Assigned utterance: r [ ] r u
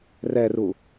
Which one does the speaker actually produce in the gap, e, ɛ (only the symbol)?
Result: ɛ